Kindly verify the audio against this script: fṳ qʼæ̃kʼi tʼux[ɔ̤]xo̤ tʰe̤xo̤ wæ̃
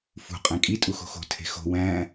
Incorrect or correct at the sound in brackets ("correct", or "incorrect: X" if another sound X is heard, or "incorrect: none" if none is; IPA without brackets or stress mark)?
incorrect: o̤